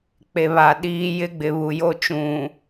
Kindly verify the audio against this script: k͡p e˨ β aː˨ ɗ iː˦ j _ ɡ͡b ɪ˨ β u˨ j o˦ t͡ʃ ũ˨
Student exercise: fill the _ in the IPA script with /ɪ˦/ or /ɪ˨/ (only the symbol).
ɪ˦